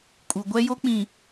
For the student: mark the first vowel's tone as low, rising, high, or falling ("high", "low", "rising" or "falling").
low